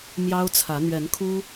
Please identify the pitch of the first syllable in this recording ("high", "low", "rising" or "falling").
high